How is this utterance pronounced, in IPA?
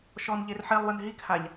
ʃ ɔ n ʎ e r ħ e lˠ w ə n ɦ i k h a ʎ

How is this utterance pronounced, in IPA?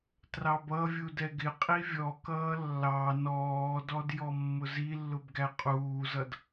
t r ɑ b ʌ vʲ u d ɛ ɡ ɪ qʼ i vʲ ɔ k ʌː lː ɑ n ɔː d ɔ d j ɔ mː ʊ z i lː ʊ b ɡ æ qʼ uː z ʌ d

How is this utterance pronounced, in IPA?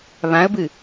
β ã ə̯ b ɨ

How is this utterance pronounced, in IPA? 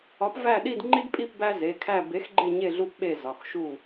ɒ˨˥ p v æ˦˨ ɗ i˦˨ d ŋ͡ǃ i˦ d pʼ i˦˨ p b æ˦ z e˩˧˩ kʰ æ˦˨ b e˨˥ x ɡ͡ǃ e˦˨ ɲ e˦˨ ɮ u˦ p ɓ e˦˨ z ɒ˩˧˩ x ʃ u˦˨

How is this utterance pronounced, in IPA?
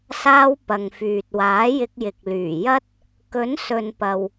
s aː˧ w p ɐ˨ ŋ f yː˨ t̚ w aː˨˥ j ɪ˧ k̚ j ɪ˨ k̚ l yː˨˩ j ɐ˥ t̚ | k ɵ˨˥ n s ɵ˨ n p ɐ˨ w

